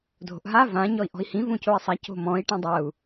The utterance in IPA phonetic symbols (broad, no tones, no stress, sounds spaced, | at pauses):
dʱ o̤ ʔ ɦ a v ã ɲ ɔ i̯ ʔ ɔ̤ i̯ h ĩ v ũ c o i̯ sˤ a c o̤ m ɔ̃ i̯ ʈ ĩ dˤ ɐ u̯